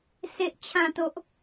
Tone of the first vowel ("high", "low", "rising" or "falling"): low